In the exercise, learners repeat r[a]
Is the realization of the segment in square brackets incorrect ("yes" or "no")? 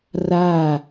no